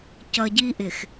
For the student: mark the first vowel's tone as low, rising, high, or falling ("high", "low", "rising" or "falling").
low